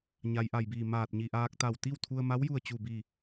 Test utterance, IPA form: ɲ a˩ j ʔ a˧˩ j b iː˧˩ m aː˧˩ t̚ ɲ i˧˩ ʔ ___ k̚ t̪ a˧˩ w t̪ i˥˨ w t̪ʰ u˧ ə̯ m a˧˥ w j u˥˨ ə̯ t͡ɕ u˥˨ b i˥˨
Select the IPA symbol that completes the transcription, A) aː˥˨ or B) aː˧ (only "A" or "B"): B